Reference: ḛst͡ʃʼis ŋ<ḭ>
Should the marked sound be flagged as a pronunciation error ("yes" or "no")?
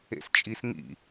no